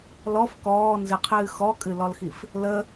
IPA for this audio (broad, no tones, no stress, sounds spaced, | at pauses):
l ɔ f k ɔː n z ɨ qʰ ɨː x ɔ kʼ ɨ l ɔ l x i f | l ə